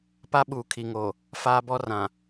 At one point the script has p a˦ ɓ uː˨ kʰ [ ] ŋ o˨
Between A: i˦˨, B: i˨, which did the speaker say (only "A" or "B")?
B